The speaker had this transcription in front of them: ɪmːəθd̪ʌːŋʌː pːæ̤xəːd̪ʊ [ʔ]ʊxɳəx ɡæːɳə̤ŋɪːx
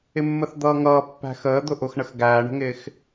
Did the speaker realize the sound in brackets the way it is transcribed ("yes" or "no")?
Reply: yes